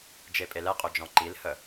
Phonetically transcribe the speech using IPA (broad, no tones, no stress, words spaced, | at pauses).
d͡ʒepʼelɛqʼø d͡ʒɔ̃ǃilhə